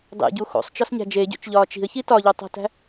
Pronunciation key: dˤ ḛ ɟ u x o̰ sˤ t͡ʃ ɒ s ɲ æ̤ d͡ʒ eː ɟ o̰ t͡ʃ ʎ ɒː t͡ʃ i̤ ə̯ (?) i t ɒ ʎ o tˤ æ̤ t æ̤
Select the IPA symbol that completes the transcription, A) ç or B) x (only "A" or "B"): A